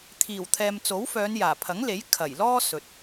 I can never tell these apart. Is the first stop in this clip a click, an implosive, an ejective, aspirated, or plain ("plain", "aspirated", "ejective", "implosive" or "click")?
aspirated